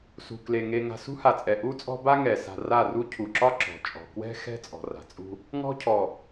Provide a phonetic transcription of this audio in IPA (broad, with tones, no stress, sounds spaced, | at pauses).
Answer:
s ṳ˨ k l e˨ ŋ e˨ ŋ a̤˨ s ṳ˦ h a˨ t͡sʼ ɛ˨ ʔ u˦ t͡sʼ ɔ̤˦ b a˦ ŋ ɛ˨ s a̤˨ r a˦˨ r u˦ cʰ u˨ ǁ ɒ˦ ǁ ɔ̤˨ t͡ʃʼ ɔ̤˨ k w ɛ̤˦ x ɛ̤˦ t͡sʼ ɔ̤˨ r a̤˨ t͡sʼ ṳ˦ | ŋ ɔ̤˦ cʰ ɔ˨